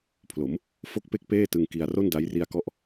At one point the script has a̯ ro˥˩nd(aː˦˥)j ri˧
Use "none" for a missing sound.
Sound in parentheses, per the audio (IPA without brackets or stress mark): a˦˥